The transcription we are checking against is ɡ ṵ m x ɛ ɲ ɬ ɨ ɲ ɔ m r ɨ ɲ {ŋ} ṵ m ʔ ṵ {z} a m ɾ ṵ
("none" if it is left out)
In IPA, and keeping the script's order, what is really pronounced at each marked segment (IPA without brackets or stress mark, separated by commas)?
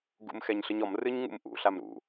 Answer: ŋ, ɬ